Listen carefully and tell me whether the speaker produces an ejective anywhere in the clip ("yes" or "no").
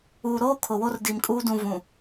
yes